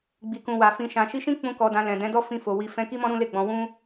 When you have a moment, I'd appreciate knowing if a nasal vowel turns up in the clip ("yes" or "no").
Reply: yes